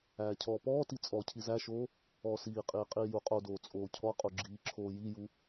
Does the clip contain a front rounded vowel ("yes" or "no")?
no